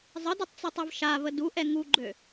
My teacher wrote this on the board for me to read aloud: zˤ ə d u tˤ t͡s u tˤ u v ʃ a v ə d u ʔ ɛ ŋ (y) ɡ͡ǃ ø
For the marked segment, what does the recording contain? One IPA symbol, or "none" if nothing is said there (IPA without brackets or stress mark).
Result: u